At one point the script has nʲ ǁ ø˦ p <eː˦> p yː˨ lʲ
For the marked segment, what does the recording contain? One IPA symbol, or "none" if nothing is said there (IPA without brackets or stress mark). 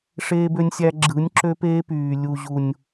eː˦